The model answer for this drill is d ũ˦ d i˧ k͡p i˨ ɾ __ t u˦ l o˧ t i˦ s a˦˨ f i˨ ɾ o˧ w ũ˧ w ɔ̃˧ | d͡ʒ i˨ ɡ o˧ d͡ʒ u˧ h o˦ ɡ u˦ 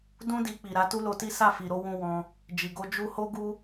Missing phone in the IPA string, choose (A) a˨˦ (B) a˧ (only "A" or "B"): A